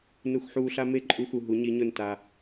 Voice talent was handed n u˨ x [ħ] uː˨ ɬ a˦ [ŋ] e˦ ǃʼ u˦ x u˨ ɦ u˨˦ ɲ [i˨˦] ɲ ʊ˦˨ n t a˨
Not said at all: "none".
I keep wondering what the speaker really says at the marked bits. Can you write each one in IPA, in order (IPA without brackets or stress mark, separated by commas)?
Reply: ħ, m, i˨˦